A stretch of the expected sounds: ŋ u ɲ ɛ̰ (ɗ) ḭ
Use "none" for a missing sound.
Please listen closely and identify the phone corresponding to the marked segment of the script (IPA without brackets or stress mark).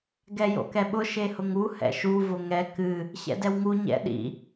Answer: ɗ